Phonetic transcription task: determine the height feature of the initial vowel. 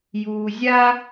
high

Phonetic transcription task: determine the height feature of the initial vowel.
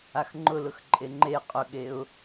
low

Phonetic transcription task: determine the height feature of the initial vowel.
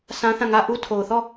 low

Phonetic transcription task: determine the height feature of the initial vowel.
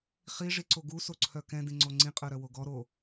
high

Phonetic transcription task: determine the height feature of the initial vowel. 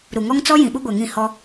high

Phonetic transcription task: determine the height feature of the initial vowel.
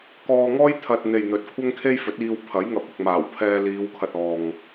mid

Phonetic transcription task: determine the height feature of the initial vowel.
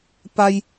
low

